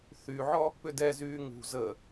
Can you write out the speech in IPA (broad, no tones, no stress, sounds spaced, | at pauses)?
θ y ʕ ɔ | p ʏ d ɛ z yː ŋ ṳ z ə